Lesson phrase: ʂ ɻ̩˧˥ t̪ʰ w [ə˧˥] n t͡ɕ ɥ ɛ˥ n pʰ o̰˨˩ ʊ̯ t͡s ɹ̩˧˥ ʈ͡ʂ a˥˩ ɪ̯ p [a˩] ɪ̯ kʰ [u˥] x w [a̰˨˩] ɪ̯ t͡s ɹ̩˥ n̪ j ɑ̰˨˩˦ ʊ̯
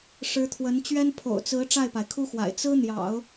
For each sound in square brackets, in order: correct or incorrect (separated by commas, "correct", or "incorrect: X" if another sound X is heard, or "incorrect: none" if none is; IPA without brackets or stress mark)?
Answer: correct, correct, correct, correct